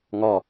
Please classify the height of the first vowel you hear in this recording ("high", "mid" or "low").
low